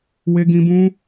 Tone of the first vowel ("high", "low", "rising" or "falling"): high